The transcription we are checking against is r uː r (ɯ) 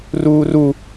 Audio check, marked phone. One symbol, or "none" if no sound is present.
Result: u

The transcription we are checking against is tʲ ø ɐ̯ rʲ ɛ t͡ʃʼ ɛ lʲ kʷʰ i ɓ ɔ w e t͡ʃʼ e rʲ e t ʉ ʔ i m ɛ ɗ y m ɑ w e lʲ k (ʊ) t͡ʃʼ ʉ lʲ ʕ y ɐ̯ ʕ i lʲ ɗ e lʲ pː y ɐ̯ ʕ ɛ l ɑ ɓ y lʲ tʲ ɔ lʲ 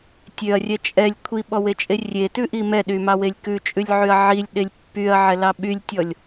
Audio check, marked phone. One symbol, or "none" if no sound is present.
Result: ʉ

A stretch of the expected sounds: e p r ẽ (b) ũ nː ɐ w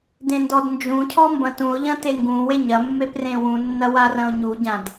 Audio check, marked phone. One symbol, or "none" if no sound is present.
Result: w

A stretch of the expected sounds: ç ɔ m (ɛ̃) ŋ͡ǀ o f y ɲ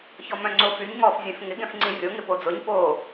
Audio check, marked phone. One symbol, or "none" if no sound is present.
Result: œ̃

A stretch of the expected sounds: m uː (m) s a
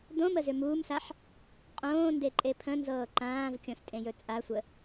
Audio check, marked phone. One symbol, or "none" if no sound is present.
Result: m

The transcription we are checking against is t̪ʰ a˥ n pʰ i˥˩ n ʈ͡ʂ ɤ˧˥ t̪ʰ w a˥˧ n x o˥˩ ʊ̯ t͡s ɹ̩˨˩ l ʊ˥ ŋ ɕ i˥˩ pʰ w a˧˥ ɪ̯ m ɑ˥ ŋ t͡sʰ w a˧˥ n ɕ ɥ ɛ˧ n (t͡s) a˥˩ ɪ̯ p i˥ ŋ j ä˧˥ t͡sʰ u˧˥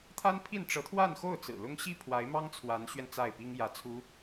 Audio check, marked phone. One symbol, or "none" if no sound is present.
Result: t͡s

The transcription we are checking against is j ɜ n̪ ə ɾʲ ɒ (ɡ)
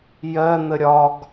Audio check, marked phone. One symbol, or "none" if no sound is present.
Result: ɡ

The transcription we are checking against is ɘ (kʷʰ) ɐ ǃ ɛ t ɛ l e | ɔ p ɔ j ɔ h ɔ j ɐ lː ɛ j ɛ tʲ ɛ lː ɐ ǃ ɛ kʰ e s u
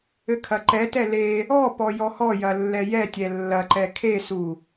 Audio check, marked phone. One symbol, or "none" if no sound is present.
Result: kʰ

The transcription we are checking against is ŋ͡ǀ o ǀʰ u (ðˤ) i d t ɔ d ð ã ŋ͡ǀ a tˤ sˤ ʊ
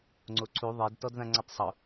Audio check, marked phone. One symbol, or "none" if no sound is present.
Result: ðˤ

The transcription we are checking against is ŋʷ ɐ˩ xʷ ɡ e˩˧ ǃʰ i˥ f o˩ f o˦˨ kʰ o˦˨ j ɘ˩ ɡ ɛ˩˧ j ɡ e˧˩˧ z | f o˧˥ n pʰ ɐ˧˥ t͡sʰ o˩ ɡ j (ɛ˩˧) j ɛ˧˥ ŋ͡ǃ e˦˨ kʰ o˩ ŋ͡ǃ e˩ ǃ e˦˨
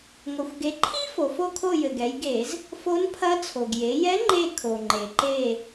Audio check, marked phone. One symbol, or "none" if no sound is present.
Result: e˩˧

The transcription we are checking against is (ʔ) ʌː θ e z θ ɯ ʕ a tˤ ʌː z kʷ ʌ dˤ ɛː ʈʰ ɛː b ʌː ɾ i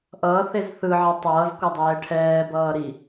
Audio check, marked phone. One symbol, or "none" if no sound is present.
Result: ʔ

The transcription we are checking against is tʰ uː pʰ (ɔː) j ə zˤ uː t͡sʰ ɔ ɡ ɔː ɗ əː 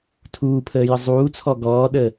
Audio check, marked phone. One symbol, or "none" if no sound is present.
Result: əː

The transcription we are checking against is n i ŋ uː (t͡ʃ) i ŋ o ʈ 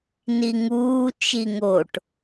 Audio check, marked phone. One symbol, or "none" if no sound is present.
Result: t͡ʃ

